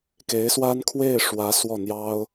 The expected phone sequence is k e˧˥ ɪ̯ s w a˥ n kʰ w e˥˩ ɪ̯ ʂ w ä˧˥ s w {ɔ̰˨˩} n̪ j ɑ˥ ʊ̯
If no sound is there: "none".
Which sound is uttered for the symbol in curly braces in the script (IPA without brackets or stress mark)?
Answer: ɔ˥˩